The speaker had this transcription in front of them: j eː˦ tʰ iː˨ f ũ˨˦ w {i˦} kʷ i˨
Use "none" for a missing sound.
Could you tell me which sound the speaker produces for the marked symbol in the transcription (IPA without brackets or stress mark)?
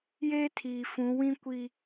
ĩ˦